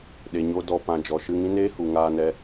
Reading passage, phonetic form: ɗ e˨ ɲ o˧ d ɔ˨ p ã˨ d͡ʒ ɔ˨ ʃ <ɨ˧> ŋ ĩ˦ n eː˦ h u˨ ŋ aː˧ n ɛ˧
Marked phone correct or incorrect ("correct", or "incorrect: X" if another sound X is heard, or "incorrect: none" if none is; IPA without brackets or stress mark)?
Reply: correct